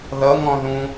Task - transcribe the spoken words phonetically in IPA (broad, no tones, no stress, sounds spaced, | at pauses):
ð ʌ ŋ ɔ̃ ð ũ